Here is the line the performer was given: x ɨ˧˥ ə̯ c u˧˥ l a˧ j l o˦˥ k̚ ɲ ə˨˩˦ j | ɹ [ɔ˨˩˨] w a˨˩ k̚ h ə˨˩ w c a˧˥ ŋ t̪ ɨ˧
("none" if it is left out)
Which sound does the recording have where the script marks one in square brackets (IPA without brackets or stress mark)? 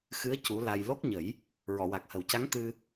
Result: ɔ˨˩˨